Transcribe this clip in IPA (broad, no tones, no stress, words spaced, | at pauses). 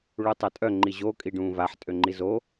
ɭutˤatʼœ ŋ͡ǃiʑo kʼiɖũːvaħ tʼøŋ͡ǃizo